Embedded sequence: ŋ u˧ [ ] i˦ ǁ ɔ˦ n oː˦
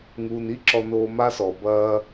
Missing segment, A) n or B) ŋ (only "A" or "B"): A